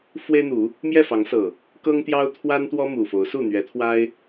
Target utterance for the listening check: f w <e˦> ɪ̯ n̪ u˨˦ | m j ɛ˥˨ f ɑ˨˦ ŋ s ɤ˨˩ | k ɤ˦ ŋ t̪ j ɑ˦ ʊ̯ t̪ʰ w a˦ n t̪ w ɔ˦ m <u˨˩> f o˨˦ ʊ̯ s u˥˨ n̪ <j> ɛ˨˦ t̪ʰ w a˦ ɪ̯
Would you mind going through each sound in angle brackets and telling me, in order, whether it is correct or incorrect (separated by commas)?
correct, correct, incorrect